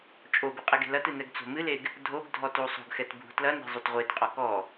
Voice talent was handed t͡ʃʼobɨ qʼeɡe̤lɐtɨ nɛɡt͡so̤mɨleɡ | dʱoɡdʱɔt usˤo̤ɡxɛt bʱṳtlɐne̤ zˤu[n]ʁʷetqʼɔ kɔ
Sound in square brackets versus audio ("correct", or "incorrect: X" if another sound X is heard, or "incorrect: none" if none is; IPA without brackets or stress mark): incorrect: t